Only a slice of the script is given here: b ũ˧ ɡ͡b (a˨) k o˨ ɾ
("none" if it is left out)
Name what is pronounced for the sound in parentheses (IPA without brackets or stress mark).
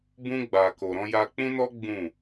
a˨